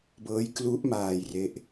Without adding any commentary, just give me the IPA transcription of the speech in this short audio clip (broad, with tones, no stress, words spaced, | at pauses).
bɤː˦˥jklu˦˥ʔmaː˧j re˦˥ʔ